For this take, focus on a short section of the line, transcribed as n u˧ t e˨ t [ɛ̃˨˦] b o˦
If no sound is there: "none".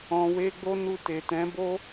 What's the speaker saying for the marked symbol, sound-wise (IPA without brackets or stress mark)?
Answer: ɛ̃˨˦